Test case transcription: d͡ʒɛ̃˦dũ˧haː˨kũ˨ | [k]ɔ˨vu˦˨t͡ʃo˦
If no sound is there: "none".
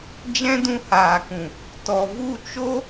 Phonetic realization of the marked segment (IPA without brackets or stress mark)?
t